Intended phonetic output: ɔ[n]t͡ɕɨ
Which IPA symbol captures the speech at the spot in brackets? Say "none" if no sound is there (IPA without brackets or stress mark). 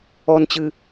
n